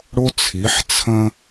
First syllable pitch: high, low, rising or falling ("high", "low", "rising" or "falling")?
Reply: high